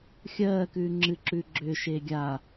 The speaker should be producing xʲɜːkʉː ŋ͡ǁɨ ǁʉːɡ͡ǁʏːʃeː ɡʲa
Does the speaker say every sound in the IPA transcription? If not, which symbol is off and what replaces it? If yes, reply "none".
none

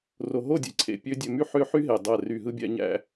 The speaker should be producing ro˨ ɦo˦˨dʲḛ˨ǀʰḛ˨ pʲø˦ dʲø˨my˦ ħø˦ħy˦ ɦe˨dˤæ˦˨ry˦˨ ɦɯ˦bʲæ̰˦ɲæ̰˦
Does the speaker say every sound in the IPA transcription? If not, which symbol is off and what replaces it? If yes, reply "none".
none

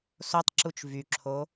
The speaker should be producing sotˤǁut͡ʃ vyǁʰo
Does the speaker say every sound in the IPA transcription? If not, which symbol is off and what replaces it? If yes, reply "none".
none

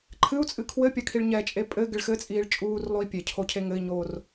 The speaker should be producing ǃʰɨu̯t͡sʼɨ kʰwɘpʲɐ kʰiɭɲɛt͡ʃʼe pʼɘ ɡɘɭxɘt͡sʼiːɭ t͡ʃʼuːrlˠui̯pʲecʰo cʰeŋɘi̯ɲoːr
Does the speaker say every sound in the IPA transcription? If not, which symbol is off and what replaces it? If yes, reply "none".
none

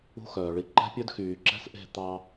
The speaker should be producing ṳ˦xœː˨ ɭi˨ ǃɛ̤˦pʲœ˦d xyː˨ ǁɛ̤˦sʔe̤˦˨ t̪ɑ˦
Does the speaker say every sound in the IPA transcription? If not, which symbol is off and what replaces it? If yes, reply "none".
none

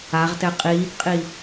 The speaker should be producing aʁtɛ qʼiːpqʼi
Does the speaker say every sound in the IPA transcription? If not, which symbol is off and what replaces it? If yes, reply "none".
none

